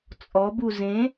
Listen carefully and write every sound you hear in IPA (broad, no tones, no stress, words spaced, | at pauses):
t͡sʼɔbu zẽ